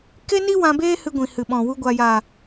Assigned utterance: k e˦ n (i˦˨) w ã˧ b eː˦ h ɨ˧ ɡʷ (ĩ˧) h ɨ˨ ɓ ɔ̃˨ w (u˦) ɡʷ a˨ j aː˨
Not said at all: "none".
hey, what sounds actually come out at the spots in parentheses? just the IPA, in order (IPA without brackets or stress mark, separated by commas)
i˦, ĩ˨, u˧